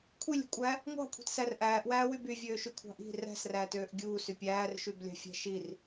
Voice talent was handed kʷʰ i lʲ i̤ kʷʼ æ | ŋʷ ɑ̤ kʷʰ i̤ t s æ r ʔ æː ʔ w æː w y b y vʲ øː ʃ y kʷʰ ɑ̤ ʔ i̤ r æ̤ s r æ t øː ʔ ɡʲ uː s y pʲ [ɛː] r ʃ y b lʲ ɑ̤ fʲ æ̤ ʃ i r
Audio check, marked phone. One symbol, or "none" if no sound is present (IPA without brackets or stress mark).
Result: æː